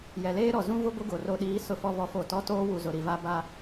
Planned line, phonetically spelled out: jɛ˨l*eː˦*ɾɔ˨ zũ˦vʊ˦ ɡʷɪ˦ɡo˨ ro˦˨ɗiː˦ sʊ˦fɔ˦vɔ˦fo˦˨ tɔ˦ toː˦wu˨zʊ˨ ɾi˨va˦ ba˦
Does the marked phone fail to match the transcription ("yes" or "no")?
no